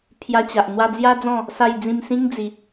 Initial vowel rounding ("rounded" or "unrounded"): unrounded